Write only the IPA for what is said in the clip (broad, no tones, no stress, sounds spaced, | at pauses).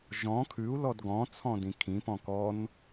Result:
ʒ ɔ̃ kʰ ʉ u̯ l ɔ d ɡ ɔ̃ t͡sʰ ɔ̃ d ĩ kʰ ĩ p ɔ̃ k ɔ n